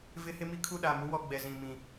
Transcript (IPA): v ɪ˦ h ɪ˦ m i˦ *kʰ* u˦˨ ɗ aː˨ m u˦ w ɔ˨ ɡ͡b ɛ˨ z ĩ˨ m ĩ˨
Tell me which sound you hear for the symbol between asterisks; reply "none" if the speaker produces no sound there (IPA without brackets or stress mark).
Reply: kʰ